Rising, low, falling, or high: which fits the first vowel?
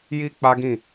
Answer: high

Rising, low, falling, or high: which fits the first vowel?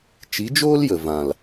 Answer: rising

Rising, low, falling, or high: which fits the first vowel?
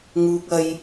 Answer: high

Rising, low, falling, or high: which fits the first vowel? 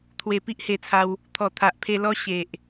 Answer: low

